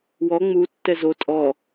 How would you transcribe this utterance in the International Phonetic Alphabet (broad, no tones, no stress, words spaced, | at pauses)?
wɔ ŋ͡mutːɛ zo tʼɔ